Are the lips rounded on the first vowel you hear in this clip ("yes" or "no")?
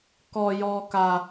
yes